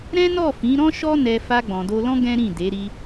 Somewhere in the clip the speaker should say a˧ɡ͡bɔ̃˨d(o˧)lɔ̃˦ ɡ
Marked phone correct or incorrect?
correct